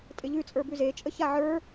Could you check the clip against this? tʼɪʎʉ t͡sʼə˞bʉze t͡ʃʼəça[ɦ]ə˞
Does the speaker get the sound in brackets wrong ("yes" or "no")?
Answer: yes